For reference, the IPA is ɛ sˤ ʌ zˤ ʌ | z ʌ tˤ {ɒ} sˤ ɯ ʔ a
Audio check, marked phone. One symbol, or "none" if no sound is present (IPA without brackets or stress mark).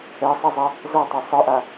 ʌ